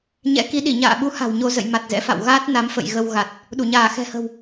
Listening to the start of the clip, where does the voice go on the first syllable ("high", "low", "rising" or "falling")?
rising